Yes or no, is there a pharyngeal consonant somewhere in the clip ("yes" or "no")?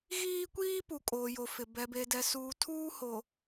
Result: no